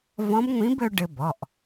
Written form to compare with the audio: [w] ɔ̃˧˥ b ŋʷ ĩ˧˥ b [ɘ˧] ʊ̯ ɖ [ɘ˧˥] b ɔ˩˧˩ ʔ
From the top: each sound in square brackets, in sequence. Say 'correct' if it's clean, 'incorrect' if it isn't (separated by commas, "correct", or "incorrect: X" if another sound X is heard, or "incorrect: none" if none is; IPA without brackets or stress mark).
incorrect: v, correct, incorrect: ɘ˧